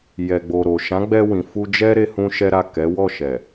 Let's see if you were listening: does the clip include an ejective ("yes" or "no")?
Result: no